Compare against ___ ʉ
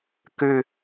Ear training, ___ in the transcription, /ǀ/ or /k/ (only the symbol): k